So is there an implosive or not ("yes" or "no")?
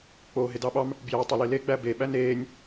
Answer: yes